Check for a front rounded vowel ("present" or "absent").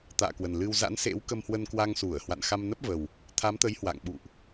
absent